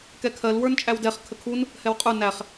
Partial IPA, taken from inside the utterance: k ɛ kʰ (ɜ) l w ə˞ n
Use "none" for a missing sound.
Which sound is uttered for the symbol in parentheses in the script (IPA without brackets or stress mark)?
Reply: ɜ